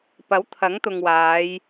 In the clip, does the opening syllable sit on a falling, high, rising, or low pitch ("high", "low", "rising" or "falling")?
rising